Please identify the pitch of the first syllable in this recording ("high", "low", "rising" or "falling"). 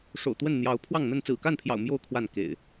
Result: low